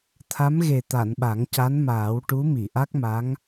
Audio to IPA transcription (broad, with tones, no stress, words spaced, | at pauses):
t̪ʰa˧˥mɣe˨˩t̪a˨˩˨n ɓa˨˩˦ŋca˧˥nmaː˨˩˦wʈu˧˥ mi˨˩˨ʔa˦˥k̚ma˧˥ŋ